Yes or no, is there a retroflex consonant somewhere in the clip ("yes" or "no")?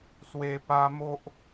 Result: no